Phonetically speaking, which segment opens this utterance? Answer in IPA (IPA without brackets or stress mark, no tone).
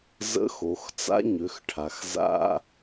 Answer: z